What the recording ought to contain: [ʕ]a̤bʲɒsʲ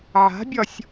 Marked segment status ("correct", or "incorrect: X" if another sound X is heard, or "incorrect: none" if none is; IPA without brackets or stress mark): correct